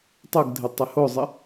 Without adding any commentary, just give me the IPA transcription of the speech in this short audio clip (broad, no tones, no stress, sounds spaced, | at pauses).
tˤ u ɡ dʱ ɪ tˤ ɪ h o zˤ ɪ